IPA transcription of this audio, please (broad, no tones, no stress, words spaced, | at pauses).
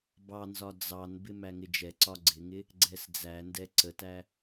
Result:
bɑnzɒ d͡zɑnbɪ mæŋɪd͡ʒɛǀɒ ɡ͡ǀɪŋɪ | ɡ͡ǀɛsd͡zændɛ ǀətæ